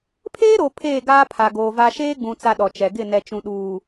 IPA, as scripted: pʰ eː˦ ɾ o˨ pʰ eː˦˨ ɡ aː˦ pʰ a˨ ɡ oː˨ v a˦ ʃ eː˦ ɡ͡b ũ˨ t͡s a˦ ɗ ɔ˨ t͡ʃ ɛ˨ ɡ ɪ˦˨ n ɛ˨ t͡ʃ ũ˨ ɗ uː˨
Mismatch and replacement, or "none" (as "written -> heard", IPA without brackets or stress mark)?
none